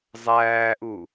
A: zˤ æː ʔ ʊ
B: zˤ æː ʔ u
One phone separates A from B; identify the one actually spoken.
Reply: B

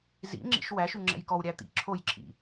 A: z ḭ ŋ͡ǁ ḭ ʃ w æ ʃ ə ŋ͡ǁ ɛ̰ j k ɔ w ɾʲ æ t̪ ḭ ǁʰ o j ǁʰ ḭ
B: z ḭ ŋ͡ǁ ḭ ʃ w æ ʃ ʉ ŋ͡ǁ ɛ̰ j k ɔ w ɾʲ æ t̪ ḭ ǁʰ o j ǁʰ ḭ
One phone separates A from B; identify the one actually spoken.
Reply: B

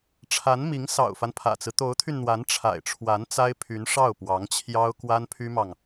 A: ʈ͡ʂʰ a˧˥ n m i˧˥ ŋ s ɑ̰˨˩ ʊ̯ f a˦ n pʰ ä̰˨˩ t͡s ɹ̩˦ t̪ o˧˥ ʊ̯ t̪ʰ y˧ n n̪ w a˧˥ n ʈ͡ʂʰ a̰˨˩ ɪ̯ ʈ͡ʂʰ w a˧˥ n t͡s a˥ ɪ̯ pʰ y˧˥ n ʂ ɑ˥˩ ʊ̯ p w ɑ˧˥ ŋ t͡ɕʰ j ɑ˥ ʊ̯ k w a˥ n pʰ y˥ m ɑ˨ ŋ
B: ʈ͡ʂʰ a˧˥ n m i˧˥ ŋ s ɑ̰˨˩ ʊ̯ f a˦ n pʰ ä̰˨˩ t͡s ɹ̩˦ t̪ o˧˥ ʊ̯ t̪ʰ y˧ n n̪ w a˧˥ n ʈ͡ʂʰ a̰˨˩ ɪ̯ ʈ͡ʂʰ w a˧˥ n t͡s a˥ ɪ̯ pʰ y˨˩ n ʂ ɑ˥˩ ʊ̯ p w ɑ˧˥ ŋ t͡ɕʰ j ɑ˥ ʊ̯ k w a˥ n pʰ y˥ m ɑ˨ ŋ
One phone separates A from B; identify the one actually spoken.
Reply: A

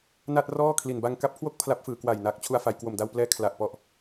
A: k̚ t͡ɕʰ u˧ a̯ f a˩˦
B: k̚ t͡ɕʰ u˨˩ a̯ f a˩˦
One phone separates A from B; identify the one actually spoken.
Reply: A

